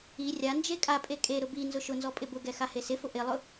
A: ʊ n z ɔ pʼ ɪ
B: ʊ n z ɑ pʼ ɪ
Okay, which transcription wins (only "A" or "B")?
A